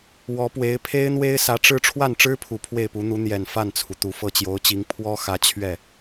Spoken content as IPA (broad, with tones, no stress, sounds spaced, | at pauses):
w ɔ˧˥ p w e˧˥ ɪ̯ pʰ e˥ ɪ̯ n̪ w e˥ ɪ̯ s ä˧˥ ʈ͡ʂ ɻ̩˥ ʈ͡ʂʰ w a˥˩ n ʈ͡ʂ ɻ̩˥ pʰ u˨˩ pʰ w e˥˩ ɪ̯ p u˧˥ n̪ u˧˥ n̪ j ɛ˨˩ n f a˥˩ n t͡sʰ u˩ t̪ u˨˩ f ɤ˥˩ t͡ɕ j o˧˥ ʊ̯ t͡ɕ i˧˥ ŋ pʰ w ɔ˥ x ä˧˥ t͡ɕʰ ɥ ɛ˥˩